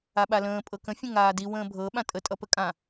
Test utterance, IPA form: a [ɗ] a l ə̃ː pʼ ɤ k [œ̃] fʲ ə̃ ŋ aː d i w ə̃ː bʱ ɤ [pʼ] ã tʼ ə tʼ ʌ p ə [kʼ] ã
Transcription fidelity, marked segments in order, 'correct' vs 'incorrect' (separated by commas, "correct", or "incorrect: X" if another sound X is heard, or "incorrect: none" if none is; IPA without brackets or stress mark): incorrect: ɓ, incorrect: ə̃, incorrect: ɓ, correct